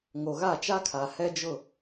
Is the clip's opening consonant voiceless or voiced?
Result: voiced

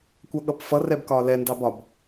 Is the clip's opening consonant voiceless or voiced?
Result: voiceless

